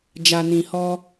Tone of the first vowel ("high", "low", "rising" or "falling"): low